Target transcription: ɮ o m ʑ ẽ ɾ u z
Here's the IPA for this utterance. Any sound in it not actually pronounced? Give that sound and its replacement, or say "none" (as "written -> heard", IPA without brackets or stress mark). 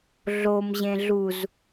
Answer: ɾ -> ɮ